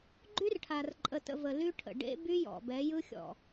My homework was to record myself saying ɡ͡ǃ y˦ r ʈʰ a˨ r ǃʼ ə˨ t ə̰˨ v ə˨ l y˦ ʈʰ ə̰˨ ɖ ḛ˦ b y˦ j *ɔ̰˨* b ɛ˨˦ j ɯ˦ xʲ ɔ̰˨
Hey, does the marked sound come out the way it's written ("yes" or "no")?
yes